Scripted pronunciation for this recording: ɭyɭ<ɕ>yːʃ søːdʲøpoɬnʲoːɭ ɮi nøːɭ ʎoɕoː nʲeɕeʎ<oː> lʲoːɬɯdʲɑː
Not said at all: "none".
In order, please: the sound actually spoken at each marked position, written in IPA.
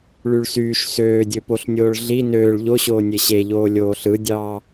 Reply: s, oː

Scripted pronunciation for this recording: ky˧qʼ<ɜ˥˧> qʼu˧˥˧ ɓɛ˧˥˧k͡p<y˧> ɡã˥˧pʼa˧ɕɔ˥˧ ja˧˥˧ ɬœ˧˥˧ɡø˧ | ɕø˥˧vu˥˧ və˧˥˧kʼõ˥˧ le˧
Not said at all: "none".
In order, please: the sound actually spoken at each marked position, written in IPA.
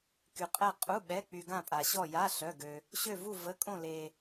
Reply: ɛ˥˧, y˧

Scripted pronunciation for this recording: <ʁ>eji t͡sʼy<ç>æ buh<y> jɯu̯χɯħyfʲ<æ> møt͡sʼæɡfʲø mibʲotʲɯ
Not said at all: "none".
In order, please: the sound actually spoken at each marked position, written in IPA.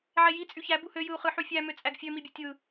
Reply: ʕ, ç, ø, æ

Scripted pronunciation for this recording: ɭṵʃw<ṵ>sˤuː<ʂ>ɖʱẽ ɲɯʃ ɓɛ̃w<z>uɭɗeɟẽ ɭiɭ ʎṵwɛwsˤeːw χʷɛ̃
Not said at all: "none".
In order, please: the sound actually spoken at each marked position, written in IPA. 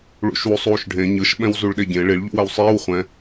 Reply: u, ʃ, z

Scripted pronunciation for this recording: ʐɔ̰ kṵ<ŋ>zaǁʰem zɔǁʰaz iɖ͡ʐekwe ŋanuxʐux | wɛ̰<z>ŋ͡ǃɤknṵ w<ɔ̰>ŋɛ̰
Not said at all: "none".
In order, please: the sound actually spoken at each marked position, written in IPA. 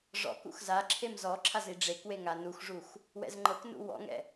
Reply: x, z, ɔ̰

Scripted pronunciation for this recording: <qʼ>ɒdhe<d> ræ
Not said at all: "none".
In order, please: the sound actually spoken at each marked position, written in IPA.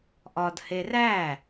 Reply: ʔ, none

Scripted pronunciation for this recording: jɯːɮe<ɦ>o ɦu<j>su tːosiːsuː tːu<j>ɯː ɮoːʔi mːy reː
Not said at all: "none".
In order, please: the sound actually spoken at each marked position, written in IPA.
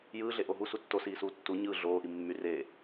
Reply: ʔ, none, ɲ

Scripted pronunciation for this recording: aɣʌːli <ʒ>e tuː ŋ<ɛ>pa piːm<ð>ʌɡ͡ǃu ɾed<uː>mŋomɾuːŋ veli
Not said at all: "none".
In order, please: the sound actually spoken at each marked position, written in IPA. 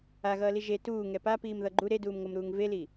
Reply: ʒ, ɛ, ð, uː

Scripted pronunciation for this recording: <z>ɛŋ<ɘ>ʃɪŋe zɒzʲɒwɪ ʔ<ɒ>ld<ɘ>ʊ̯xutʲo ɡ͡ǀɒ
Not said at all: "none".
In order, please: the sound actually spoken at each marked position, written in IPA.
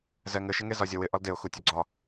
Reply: z, ɘ, ɒ, e

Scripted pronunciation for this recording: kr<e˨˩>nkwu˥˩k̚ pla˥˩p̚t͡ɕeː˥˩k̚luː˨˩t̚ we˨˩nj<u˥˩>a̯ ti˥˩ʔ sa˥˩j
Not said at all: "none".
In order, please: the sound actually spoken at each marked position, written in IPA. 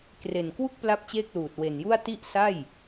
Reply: e˨˩, u˥˩

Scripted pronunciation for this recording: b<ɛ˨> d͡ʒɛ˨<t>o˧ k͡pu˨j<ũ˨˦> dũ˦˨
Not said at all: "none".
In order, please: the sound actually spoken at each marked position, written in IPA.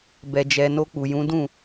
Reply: ɛ˨, n, ũ˨˦

